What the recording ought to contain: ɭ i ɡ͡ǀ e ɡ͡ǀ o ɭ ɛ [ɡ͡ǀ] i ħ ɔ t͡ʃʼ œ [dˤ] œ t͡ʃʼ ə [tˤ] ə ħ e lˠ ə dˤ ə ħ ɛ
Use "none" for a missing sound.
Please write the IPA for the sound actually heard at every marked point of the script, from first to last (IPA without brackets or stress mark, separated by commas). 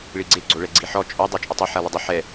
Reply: ɡ͡ǀ, dˤ, tˤ